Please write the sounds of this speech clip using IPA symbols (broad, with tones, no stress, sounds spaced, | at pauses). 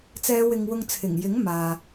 t͡s ɛː˨˧ w ɪ˧ ŋ w ʊ˧ ŋ t͡sʰ ɪ˨˩ ŋ j ɪ˨˥ ŋ m aː˨